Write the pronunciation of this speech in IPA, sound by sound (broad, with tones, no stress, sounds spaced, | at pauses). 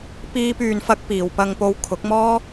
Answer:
p iː˥ p yː˧ n f ɐ˥ k̚ p iː˨˧ w p ɐ˧ ŋ p o˧ w kʰ ʊ˨˥ k̚ m ɔː˥